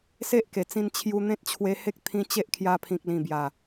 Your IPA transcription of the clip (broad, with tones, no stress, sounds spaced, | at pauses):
s e˦ ʔ k e˨˩ t͡s ĩ˧ n t͡ɕʰ j u˧ n̪ ẽ˦ t̚ t͡ɕʰ w e˧ h e˦ k̚ t̪ʰ ĩ˧ t͡ɕ e˦ ʔ kʰ j a˧ pʰ ĩ˨ k̚ l ĩ˨˩ b j a˨˩